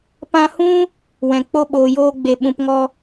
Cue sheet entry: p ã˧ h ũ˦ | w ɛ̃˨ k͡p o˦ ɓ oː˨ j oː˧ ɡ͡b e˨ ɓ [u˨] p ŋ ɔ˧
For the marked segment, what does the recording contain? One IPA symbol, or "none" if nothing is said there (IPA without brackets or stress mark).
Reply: ũ˨